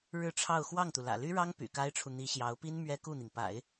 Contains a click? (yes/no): no